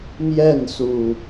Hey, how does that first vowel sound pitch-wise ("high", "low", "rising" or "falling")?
falling